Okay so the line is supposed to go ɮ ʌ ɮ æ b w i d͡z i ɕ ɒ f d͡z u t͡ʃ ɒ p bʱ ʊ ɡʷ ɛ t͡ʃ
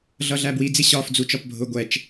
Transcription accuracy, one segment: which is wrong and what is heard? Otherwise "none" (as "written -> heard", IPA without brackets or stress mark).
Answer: none